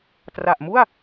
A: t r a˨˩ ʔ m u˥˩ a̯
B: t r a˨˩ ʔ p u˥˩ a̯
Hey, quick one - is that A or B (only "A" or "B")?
A